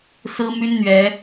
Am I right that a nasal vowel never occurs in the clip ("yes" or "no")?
yes